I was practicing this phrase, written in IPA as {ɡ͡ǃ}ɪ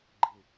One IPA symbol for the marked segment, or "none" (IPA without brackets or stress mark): ɡ͡ǃ